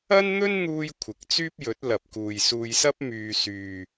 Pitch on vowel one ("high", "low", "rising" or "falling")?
high